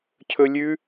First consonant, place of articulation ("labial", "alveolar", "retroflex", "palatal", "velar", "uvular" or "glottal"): palatal